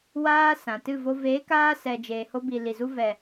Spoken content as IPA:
w aː˧ s ã˨ t ɨ˦˨ v o˧ v eː˨˦ k aː˧ s ɛ˨ d͡ʒ eː˨ h o˧ b i˨ l i˨ z u˧ v ɛ˨

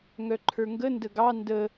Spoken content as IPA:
ŋ œ ǃʰ ə˞ ŋ ɡ ə n d ə ɡ ɑ n d ə

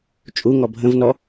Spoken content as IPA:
t͡ʃʼ u ŋ ɔ bʱ ə̃ v n ɔ

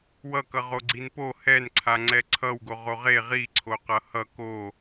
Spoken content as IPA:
w ʌ k ʌ ʁ o ɡ͡ǀ i n p o h ɛ n ǀʰ a ŋ͡ǀ ɛ ǀʰ ʌ w ɡ o ʁ o ʁ e ʁ i ǀʰ o q ʌ h ʌ k o

